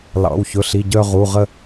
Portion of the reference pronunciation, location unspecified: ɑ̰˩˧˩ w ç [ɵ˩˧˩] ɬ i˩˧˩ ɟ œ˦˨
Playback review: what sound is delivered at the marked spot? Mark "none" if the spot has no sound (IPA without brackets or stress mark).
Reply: ɵ˩˧˩